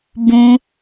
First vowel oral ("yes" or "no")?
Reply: no